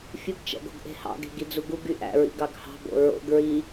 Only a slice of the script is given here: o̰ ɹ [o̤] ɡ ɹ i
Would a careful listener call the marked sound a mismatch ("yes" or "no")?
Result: yes